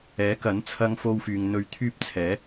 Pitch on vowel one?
rising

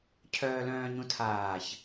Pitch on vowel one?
low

